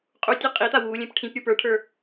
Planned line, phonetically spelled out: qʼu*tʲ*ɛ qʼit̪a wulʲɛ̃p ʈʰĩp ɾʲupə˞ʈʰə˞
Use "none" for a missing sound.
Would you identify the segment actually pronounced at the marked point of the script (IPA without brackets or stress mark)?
tʲ